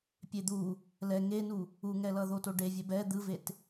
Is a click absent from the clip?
yes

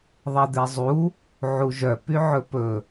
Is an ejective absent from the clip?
yes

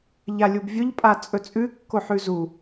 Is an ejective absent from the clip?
no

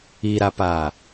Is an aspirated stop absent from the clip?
yes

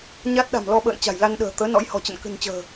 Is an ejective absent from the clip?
yes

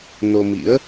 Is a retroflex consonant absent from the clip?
yes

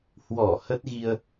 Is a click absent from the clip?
yes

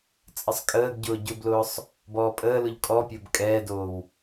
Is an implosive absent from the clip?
yes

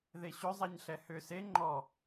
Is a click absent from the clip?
no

